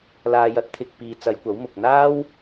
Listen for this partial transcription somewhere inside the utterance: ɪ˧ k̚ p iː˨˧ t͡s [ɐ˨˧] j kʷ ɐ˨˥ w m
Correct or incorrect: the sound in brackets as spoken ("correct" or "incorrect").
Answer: correct